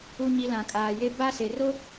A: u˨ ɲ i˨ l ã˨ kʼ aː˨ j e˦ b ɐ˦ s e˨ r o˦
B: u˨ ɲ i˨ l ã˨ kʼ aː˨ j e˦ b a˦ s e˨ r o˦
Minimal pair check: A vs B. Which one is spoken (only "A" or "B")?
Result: B